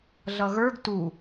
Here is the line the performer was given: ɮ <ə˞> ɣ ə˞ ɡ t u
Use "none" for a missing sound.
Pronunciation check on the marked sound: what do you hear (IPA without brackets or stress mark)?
ʌ